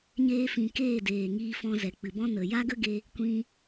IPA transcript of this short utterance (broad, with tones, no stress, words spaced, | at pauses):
ɲeː˧fĩ˨ keː˦˨deː˨ŋiː˧fɔ̃˧ zɛ˨k͡pɨ˨bɔ̃˦ nə˨ ja˦ɡə˦ɡe˧ | kʷĩ˧